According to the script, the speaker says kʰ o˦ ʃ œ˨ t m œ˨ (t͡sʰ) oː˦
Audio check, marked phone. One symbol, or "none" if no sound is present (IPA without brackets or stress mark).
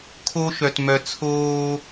t͡sʰ